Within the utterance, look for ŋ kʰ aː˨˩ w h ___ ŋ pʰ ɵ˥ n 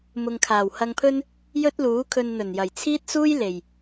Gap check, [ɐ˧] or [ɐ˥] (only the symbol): ɐ˧